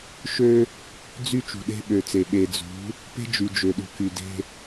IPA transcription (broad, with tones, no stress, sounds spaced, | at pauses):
ʃ ø˦ | d͡z y˦ t͡ʃ ṳ˨ ɗ e̤˦ ɓ ø˨ t͡s e˨ ɓ e˨ d͡z ṳ˨˦ | p e̤˦ d͡ʒ y˨ d͡ʒ ø˨ ɗ ṳ˨ k y˨ d e̤˦